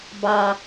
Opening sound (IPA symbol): b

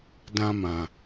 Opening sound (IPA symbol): d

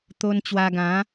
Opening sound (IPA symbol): t̪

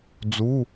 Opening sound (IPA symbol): d͡z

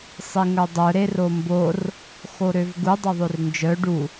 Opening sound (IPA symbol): sˤ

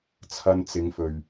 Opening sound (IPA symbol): t͡sʰ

